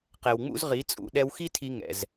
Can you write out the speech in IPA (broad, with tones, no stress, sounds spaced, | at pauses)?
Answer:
q ɛ˨ w ŋ͡m ṵ˦ z ʁ i˨˦ t͡sʼ ṵ˨ ɗ ɛ˧ w x i˦ tʰ i˧ ŋ ɛ̰˨ z